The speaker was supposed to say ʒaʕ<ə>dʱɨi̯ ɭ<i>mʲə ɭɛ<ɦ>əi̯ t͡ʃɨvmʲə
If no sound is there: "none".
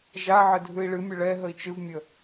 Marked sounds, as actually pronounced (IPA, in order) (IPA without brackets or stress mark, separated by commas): ə, ɨ, ɦ